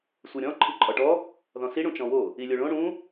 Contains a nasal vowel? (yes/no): yes